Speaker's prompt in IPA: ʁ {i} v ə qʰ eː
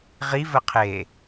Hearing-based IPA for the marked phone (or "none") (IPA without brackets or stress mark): i